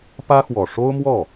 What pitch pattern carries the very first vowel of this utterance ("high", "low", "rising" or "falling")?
high